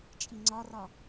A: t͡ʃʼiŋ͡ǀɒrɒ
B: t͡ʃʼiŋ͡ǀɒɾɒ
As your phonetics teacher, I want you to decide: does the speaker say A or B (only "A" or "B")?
A